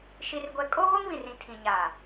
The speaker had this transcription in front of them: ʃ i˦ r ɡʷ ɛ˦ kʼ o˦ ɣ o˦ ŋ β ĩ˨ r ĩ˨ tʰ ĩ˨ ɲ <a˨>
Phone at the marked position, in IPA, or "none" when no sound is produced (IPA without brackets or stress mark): a˨